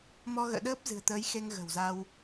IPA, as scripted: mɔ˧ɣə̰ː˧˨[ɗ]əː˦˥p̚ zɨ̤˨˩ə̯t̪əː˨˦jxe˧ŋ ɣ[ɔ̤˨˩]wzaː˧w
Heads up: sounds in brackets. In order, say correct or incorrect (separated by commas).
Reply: correct, incorrect